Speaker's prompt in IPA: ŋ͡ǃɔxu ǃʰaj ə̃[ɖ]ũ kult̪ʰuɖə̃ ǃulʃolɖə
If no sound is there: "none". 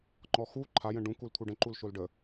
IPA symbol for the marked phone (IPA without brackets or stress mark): ɖ